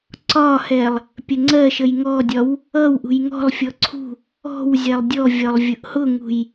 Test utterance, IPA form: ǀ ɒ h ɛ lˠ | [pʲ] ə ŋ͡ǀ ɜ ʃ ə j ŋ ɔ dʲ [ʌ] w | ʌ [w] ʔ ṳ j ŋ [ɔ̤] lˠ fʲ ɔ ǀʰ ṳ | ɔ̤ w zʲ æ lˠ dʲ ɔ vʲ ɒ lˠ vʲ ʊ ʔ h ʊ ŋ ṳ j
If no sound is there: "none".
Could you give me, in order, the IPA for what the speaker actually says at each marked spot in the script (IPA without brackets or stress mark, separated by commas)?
pʲ, ɒ, w, ɔ̤